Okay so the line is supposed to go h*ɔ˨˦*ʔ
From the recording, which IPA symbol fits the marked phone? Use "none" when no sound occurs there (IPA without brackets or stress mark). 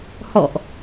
ɔ̰˧˨